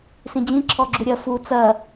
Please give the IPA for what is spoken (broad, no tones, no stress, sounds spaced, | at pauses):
s ĩ d͡ʑ ĩ ǁʰ ɔ ɡ͡ǁ u ɾʲ ɐ f u t͡s ɐ